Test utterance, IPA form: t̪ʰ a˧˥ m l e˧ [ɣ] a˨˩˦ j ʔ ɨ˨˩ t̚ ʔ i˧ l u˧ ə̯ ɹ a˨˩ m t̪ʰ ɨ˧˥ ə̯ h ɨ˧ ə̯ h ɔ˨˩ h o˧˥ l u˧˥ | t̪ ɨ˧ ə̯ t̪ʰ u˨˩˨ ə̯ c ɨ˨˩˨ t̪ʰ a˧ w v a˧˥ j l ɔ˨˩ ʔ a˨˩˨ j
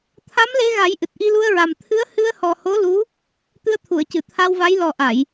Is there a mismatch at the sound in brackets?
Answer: no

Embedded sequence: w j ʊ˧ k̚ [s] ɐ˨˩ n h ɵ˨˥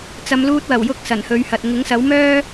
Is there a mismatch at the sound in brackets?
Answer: no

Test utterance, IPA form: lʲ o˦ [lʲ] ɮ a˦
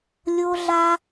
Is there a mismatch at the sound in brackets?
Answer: yes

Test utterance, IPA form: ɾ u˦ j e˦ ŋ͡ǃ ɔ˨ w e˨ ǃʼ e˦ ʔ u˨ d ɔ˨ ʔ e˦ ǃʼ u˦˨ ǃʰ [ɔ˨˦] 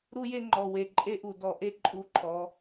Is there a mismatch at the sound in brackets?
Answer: no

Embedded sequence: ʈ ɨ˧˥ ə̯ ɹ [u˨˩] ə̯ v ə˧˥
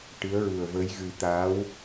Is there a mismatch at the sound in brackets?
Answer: no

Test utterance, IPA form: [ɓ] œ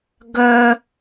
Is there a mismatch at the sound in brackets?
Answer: yes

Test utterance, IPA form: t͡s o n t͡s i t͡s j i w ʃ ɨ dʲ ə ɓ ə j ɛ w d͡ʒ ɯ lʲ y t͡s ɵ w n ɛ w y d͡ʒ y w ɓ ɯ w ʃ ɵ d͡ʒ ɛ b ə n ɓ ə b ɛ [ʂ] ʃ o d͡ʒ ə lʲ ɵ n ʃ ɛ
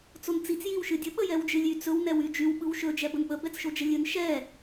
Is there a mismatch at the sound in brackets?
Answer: yes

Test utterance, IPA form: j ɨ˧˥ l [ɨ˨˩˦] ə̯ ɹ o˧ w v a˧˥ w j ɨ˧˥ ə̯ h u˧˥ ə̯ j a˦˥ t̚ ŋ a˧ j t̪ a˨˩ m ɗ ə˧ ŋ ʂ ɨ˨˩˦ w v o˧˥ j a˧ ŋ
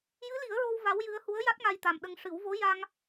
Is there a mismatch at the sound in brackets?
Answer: yes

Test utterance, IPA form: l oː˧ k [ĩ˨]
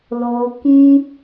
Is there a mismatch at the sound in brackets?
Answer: yes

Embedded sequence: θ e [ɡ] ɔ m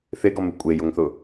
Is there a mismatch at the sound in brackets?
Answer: no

